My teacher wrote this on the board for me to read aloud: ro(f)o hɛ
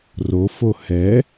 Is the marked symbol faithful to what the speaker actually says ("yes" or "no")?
yes